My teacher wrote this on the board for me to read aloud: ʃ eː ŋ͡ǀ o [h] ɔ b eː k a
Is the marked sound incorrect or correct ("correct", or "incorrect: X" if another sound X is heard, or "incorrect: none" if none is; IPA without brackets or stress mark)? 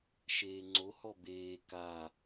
correct